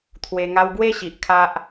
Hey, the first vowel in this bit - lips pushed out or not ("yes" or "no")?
no